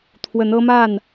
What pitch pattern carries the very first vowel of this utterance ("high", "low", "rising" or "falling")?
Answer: rising